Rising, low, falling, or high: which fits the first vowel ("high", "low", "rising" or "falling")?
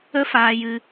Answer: high